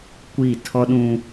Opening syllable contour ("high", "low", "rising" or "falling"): falling